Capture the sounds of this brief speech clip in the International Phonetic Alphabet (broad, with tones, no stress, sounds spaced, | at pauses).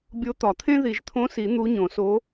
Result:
bʲ o˧˥ t̪ ɒ˨˩˦ t̪ʰ ẽ˥ ð i˨˩˦ ʒ t̪ʰ õ˧˥ s i˨˩˦ n̪ u˧˥ ɲ õ˨˩˦ s o˧˥